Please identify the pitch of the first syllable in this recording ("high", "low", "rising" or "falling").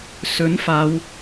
rising